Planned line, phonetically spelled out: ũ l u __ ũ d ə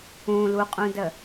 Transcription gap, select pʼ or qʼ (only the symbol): qʼ